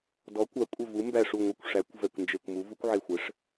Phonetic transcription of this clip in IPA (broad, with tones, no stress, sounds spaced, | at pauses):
d ɔ˩˥ kʷ a˩˥ kʷʼ ə˧˩ v u˩˥ m b æ˧˩ ʂ u˧˩ ŋʷ ɛ˧˩ kʷ ʂ æ˩˥ kʷ v ɛ˧˩ kʷ n d͡ʒ e˧˩ kʷ m u˩˥ v u˩˥ kʷ ʕ e˧˩ xʷ ɘ˩˥ ʂ